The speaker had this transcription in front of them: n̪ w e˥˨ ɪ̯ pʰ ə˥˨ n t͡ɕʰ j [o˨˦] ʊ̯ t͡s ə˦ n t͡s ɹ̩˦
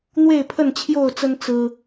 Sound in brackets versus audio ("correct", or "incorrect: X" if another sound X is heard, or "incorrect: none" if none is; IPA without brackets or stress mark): incorrect: o˥˨